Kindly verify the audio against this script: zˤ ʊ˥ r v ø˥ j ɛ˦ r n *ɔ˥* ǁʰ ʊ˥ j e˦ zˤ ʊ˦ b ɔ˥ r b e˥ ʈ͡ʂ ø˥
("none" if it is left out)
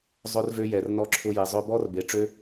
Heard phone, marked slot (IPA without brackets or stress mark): ɔ˥